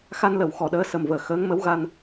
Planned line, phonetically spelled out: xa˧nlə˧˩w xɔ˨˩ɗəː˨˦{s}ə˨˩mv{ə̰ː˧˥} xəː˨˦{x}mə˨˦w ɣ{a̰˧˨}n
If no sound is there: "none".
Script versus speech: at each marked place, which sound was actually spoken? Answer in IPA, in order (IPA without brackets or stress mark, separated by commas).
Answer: s, əː˧˩, ŋ, a˧